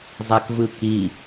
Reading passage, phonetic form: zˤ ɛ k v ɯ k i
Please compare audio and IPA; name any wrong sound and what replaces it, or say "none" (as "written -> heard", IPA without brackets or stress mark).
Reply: none